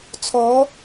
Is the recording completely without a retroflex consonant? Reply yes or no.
yes